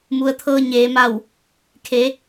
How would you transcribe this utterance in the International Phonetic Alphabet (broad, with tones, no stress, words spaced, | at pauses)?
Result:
mu˩ə̯t̪ʰɤː˧ ɲeː˩˧ma˧˩w | kʰe˩˧